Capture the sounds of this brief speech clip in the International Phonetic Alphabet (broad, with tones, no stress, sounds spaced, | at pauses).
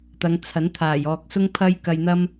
t̪ ɐ˨˧ ŋ t͡sʰ ɐ˨˥ n t̪ʰ aː˨˩ j ɔː˨ k̚ s ʊ˥ ŋ pʰ ɐ˥ j k ɐ˧ j n̪ ɐ˥ m